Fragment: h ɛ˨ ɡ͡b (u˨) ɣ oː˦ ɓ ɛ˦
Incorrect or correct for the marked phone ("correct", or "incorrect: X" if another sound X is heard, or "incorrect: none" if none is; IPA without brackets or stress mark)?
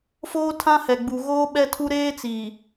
correct